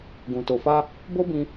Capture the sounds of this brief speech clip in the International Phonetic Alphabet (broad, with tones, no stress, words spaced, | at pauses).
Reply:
ɡũ˨to˨fa˧ | bo˦bĩ˧